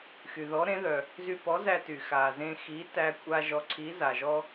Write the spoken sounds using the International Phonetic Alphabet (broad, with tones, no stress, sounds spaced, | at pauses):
x y˩ ð ɔ˨˥ ɾ ẽ˨˥ ð œ˩ | z y˧ p ɔ˨˥ z æ˧ t y˩ x a˩ z ẽ˧ x i˨˥ t æ˧ kʷʼ a˧ ʒ ɔ˨˥ ǀʰ i˨˥ z a˩ ʒ ɔ˧